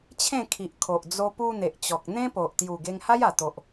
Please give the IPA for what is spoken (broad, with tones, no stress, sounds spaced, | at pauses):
t͡ɕʰ ẽ˥˧ kʰ i˨ ʔ kʰ o˨ ʔ d͡z o˧ p u˧ n̪ e˨ ʔ t͡ɕ ɔ˨ k̚ n̪ ẽ˦ p o˨ ʔ t̪ j u˨˩ ɡ e˧ ŋ h a˦ j a˨˩ t̪ o˨ ʔ